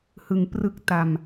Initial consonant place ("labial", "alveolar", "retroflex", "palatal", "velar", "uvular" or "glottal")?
glottal